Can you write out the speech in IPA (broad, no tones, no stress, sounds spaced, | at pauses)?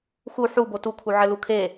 x u ħ u b o t u kʰ u ʕ ɘ l u kʰ e